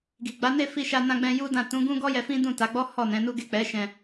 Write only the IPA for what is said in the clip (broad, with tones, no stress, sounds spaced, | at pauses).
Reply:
ɡ i˨ ɡ͡b a˨˦ n e˦˨ f i˧ ʃ a˧ n ã˧ ɡ͡b ɛ̃˧ j u˦ d ã˦˨ t ũ˨˦ ɡ ũ˦ ɡ ɔ˦ j ɛ˧ f ĩ˦ d ũ˦˨ t a˨˦ ɡ͡b ɔ˦ h ɔ˦˨ n ɛ̃˨˦ n u˦ ɡ e˦˨ k͡p ɛ˨˦ ʃ ɛ̃˧